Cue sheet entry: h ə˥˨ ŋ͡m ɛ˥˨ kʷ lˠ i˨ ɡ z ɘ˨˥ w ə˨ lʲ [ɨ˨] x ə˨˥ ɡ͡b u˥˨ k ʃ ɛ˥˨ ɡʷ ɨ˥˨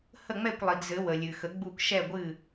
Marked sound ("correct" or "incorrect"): correct